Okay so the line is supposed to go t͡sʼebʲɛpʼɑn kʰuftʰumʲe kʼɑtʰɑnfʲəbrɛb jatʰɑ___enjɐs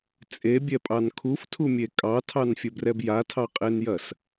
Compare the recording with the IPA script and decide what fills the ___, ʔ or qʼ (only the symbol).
qʼ